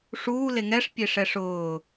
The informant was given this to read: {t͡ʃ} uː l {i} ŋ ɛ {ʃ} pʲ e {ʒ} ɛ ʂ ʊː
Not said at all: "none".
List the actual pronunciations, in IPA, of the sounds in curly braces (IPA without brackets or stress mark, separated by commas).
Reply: ʂ, e, ʂ, ʂ